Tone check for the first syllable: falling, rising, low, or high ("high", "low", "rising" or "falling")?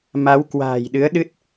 rising